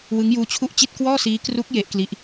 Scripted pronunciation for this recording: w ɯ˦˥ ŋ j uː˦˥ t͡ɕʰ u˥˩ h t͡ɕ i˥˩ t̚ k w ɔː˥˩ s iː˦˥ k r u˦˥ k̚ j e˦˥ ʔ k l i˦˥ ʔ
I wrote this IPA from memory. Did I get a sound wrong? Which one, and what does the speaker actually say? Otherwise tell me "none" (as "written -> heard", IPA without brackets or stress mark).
h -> ʔ